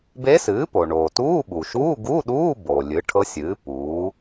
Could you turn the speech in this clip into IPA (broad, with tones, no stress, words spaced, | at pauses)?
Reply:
be˧˥sɨː˩˥ po˩ ɳoː˩ tuː˧˥˧ɓu˩ʃuː˧˥˧ ɡu˧˥˧ɗuː˧˥˧bo˩ lʲɨ˩˥ʈʰɤ˧˥sʲɨː˩˥ puː˩˥